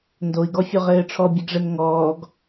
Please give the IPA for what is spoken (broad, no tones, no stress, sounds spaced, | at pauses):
n d o i̯ ɡ ɔ fʲ o ʁ ɘː ʈ͡ʂʰ ɔ bʲ ɛ ɡ ʐ ɛ n ŋ ɔː ɡ